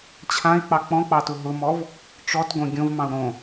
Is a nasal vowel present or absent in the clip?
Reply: present